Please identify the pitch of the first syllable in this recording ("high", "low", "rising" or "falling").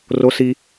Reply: high